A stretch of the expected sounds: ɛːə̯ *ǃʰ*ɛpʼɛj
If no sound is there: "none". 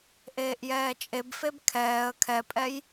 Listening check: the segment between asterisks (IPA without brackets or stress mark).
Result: kʰ